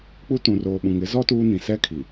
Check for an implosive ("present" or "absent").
present